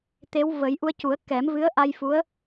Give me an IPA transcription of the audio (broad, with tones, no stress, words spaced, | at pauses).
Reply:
t̪e˧˥wvə˨˩˦j ʔu˧ə̯cu˨˩˦ə̯kɛ˨˩˦m vɨ˧˥ə̯ʔa˧jfu˧˥ə̯